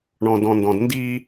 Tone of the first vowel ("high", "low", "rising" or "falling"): low